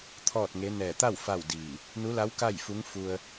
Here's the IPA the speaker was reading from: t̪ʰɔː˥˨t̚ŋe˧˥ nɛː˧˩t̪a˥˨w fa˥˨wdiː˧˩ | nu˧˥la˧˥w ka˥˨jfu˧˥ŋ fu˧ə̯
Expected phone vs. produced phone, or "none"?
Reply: none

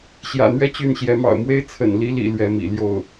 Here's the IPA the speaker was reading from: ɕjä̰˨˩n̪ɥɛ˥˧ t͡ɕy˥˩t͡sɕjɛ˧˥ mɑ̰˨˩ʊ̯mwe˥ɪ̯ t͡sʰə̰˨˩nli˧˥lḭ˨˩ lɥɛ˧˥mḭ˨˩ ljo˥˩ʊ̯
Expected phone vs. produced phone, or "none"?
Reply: t͡s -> n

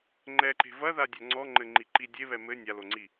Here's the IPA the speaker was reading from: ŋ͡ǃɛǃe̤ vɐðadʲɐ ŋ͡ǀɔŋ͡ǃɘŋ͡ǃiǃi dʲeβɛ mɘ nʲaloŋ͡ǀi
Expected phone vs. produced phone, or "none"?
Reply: none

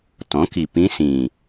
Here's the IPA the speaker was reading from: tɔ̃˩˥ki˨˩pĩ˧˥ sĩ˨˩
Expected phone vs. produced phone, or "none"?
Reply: none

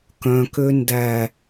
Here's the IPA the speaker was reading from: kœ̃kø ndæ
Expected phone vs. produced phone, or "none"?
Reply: none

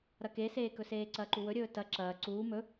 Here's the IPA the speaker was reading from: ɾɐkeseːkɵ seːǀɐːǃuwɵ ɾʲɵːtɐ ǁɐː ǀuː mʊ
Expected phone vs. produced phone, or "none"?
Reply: ʊ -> ɵ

